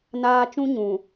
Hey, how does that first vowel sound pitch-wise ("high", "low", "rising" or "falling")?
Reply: high